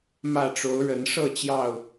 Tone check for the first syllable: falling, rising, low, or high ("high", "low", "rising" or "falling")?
falling